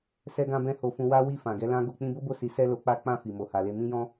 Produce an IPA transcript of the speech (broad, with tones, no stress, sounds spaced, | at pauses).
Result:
s ɛ˧ ɡ ã˧ b ɛ̃˧ h o˧ f ũ˧ w a˦ w i˦˨ f ã˨ ɡ ɛ˨˦ l ã˦ ɡ o˧ k͡p ĩ˧ b o˦ b o˦˨ s i˨˦ s ɛ˦ l o˧ k͡p a˦ k͡p ã˦˨ f i˨ m o˨ h a˨ l e˧ m ĩ˧ j ɔ̃˧